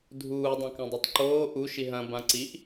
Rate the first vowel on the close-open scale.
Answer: close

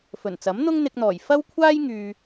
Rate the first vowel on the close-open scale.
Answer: mid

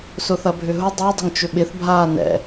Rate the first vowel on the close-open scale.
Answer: close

